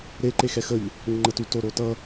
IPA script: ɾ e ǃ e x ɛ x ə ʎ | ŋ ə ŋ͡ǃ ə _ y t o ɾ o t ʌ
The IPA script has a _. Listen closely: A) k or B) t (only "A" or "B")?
B